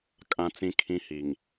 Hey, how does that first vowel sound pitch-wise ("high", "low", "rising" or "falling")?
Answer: low